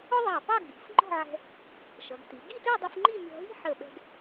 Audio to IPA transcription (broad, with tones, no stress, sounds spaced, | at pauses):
ʊ˥ ðˤ ɑ˧˩ p ɑ˥˧ ɡ͡b i̤˩˧ f ŋ͡ǃ ɔ̤˥˧ ʕ ɛ̤˧ | ʃ ʌ˩˧ ɡ t i˩˧ ɡ i˥˧ t ə˞˥˧ dˤ ʊ˧ f ŋ͡ǃ i˥˧ mʲ ɔ̤˧ ɦ i̤˥ ħ ə˧˩ ɓ ɛ̤˧ ɡ